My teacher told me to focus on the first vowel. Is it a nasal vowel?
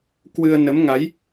no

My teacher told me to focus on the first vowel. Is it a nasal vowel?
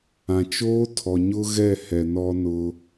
yes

